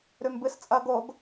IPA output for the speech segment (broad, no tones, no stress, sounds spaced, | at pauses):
ɾ ʉ m b ɨ s t͡sʼ ɐ ɡ o ɡ